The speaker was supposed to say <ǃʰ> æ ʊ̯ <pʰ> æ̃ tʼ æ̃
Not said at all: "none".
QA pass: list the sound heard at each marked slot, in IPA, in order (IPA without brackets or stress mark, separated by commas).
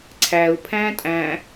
ǀʰ, pʰ